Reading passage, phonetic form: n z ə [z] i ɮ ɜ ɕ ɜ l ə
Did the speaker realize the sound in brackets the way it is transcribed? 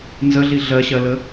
no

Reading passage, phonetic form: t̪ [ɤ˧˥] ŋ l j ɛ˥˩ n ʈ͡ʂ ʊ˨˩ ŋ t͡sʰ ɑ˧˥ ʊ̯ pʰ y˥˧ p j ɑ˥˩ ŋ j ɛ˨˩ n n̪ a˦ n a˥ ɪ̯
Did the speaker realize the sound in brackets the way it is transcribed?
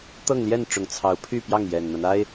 no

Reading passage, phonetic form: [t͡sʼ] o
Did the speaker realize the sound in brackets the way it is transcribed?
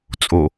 yes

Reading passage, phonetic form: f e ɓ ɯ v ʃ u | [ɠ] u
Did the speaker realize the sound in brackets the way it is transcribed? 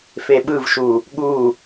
yes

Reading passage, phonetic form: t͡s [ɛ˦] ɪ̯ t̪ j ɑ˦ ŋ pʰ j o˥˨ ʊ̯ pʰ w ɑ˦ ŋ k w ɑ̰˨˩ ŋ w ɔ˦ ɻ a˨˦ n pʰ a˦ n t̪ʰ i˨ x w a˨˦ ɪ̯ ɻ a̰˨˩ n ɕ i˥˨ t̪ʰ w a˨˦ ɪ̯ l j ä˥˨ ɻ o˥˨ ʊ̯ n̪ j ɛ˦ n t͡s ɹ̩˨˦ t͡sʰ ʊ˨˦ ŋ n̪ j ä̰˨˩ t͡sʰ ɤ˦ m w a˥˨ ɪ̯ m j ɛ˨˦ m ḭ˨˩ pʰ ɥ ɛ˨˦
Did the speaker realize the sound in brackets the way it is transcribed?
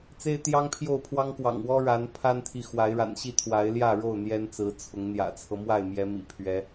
no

